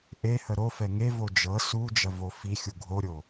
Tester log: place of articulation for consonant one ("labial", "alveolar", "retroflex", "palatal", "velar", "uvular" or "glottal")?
glottal